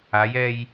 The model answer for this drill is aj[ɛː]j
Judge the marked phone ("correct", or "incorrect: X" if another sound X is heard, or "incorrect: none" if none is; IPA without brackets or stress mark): correct